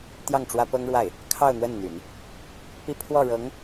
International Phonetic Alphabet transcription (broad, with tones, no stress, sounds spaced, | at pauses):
t̪ j ɑ˥˩ ŋ ʈ͡ʂ w ä˥ p ɤ˥ ŋ ɻ w a˥˩ ɪ̯ | kʰ ɑ˥˧ ʊ̯ n̪ w ə˥˩ n n̪ y̰˨˩˦ n | p i˥˧ pʰ w ɔ˥˩ ɻ ɤ˧˥ ŋ